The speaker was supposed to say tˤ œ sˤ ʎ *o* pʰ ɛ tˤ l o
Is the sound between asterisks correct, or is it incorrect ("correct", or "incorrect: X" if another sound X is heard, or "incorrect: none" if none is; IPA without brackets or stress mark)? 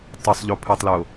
correct